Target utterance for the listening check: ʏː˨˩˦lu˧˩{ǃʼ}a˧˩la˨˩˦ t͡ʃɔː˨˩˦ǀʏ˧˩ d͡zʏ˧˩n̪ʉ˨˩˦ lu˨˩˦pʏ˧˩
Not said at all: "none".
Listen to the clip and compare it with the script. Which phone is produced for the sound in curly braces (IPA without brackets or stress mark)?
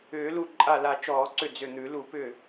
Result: ǃʼ